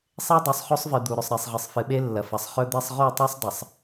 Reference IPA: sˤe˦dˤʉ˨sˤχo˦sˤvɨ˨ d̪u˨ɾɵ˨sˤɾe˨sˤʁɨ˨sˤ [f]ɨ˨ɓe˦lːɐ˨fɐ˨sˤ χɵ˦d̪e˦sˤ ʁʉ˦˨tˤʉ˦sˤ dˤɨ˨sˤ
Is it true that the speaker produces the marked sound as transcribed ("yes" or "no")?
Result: yes